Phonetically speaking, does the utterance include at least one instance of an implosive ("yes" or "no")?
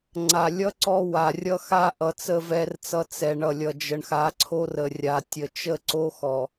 no